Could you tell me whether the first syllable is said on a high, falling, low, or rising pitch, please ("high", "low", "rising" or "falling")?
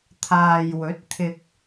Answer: low